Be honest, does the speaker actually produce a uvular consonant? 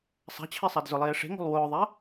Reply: no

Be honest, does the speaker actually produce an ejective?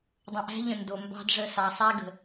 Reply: no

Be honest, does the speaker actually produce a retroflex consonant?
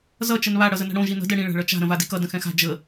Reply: yes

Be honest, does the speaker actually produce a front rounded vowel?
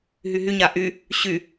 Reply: yes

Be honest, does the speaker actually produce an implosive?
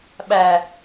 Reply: yes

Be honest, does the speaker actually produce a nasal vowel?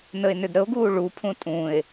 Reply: yes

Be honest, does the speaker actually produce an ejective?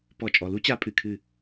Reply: yes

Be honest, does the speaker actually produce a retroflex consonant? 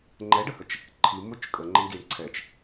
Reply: yes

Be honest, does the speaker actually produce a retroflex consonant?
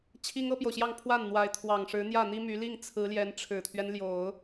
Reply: yes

